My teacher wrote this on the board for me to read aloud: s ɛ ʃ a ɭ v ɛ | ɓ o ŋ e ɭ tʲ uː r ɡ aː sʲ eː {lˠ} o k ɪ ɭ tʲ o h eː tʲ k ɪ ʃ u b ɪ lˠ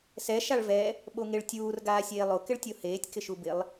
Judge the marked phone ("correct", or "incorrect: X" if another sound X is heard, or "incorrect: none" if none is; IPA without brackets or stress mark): correct